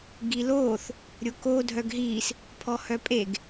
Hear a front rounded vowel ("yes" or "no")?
yes